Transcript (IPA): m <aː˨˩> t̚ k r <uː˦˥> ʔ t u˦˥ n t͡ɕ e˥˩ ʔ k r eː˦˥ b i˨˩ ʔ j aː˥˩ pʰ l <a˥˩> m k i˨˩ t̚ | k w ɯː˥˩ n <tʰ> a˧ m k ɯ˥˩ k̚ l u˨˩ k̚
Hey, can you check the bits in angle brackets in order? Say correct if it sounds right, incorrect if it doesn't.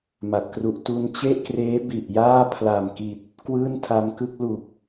incorrect: a˨˩, incorrect: u˦˥, incorrect: a˨˩, correct

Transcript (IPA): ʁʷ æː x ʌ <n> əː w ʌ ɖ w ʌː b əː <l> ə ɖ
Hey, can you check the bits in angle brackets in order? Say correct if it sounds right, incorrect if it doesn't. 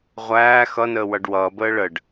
correct, incorrect: ɭ

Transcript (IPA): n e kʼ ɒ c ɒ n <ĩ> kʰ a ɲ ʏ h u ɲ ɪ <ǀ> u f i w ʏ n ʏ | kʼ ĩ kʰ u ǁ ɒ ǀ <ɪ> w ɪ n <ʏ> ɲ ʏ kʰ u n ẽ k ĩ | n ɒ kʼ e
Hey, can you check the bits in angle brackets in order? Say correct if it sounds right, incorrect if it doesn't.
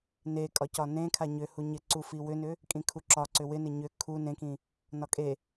incorrect: ẽ, correct, incorrect: ʏ, incorrect: ɪ

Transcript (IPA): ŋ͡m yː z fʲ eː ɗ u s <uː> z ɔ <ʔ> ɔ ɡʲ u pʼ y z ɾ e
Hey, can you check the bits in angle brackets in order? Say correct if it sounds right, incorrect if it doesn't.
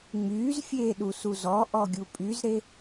incorrect: u, correct

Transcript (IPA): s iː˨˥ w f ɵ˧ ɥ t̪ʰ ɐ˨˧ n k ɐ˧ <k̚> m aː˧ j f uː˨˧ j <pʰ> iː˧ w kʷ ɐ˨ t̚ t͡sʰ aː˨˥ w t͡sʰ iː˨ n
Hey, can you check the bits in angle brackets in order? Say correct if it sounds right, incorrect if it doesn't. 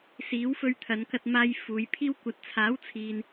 incorrect: t̚, correct

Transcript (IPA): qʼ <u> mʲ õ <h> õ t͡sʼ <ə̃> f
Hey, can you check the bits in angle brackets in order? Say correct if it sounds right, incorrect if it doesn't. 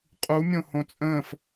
correct, correct, incorrect: ə̃ː

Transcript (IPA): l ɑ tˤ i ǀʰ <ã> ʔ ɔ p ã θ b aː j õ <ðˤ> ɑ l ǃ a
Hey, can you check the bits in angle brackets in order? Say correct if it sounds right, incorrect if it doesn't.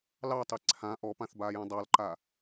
correct, incorrect: dˤ

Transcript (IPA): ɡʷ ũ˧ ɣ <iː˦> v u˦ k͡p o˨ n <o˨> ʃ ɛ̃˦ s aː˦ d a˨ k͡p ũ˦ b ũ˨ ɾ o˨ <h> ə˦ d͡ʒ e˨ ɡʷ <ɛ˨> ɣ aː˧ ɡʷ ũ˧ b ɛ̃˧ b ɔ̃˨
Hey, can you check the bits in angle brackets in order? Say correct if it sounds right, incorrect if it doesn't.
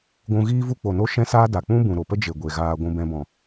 correct, incorrect: o˦, incorrect: p, incorrect: e˨

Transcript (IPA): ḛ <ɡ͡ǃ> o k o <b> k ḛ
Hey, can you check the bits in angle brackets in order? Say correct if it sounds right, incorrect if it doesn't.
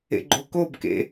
correct, correct

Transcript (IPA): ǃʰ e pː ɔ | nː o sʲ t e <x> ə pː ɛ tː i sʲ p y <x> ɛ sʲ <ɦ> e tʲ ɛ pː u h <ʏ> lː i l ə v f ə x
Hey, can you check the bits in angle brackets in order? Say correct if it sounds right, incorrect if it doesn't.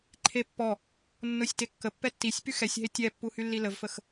incorrect: kː, correct, correct, incorrect: y

